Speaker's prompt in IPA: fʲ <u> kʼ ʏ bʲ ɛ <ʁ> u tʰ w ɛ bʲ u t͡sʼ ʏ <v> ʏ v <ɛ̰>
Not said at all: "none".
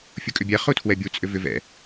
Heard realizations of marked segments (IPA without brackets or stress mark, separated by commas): u, χ, v, ɛ̰